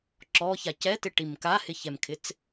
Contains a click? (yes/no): yes